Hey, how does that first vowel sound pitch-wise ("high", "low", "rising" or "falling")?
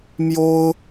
high